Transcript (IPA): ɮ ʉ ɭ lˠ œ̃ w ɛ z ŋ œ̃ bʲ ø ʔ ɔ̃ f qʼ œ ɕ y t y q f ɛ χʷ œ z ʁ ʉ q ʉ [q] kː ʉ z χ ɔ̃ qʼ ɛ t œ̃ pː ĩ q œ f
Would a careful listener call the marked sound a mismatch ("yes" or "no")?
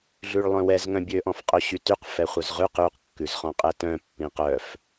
no